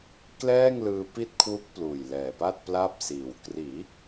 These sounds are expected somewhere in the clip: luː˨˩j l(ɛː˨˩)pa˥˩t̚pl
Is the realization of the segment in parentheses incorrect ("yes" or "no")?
no